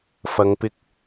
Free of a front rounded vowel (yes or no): yes